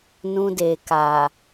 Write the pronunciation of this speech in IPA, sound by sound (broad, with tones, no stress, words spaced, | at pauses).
nũ˧de˨ka˨